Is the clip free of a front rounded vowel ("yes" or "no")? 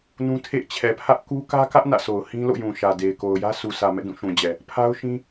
yes